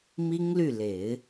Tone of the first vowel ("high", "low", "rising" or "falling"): high